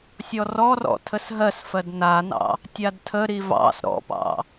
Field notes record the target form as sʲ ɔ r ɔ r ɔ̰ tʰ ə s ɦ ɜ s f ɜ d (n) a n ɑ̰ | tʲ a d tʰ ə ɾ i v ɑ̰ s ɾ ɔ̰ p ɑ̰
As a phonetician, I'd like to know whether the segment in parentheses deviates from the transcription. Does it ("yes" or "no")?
no